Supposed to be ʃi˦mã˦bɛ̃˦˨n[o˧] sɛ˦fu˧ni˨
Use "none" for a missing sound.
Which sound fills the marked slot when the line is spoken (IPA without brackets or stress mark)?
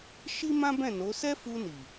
o˨˦